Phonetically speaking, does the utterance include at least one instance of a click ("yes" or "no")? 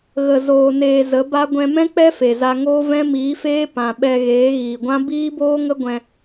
no